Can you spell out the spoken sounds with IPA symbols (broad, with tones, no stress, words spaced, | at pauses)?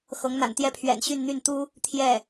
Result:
xɤ˧˥ŋn̪a̰˨˩nt̪jɛ˥˩pʰɥɛ̰˨˩n ɕy˥˧nn̪y˥˩n t̪u˥ | t̪ʰjɛ˥˩